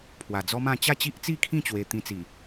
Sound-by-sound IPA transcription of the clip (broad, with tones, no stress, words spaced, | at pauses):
pʰwa˨˩d͡zɔ˦mã˥˧ t͡ɕa˥˧t͡ɕi˦ʔt͡si˥˧kʰĩ˥˧ t͡ɕwe˧t̪ĩ˧t͡si˨˩